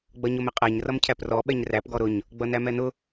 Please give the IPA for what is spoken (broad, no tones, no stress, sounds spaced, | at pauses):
ɡ͡b ʌ ɲ ʊ m ɪ qʼ æ ɲ r ʌ m cʰ æ p r ɔ ɓ ɛ ɲ r æ p ɡ ɔ ɾ ʊ ɲ | ɡ͡b ʌ n æ m ɛ n ʊ